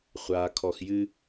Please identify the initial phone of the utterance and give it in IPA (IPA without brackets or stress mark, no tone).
χʷ